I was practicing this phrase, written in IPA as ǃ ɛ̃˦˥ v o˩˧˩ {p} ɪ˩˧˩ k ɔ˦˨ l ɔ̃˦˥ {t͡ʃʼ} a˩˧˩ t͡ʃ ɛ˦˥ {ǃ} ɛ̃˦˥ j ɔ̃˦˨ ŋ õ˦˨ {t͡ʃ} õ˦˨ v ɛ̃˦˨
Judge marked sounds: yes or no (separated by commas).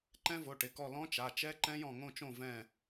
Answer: no, no, yes, yes